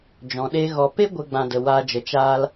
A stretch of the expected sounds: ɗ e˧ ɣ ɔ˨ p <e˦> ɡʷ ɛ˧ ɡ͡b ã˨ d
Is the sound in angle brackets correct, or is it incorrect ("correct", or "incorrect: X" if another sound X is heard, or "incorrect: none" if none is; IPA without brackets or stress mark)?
correct